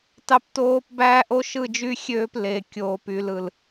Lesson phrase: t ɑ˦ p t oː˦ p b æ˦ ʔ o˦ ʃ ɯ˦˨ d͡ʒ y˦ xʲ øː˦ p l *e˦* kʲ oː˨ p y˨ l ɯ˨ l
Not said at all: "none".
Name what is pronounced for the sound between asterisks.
e˨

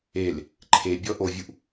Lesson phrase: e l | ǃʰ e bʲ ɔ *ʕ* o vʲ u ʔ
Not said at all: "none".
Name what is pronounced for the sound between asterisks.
ʔ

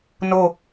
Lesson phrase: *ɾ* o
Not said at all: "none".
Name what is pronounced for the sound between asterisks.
n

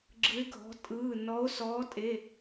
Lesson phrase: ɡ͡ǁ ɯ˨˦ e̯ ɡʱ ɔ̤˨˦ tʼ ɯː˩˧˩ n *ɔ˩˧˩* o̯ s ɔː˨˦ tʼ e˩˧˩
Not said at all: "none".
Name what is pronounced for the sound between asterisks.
ɔ˨˦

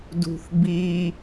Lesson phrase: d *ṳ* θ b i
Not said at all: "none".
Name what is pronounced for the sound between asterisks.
ṳ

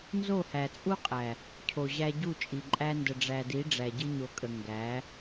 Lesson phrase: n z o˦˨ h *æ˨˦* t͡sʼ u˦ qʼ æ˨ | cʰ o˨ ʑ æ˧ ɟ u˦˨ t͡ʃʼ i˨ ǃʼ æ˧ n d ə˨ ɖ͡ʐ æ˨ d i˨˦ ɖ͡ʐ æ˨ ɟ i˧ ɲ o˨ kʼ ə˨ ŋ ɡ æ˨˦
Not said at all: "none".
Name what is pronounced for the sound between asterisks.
æ˨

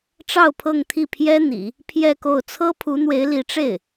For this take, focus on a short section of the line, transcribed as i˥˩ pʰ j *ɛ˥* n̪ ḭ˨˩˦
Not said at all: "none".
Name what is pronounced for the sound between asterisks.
ɛ˥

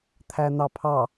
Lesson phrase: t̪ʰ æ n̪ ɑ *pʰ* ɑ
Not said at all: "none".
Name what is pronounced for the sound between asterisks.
pʰ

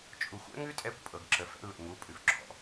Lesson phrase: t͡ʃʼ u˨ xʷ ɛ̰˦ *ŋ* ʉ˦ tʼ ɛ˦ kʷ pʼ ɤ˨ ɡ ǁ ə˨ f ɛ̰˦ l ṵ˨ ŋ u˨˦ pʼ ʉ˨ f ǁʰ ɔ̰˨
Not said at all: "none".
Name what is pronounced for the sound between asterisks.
ŋ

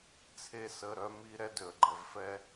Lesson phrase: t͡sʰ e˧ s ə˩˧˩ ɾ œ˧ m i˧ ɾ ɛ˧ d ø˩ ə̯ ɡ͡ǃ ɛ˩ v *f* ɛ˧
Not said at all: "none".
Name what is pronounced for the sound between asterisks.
f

